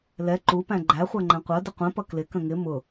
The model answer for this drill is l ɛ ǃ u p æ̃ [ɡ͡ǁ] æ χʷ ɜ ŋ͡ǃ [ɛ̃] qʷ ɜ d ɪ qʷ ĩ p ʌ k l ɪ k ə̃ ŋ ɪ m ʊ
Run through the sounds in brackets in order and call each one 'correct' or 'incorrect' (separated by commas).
incorrect, incorrect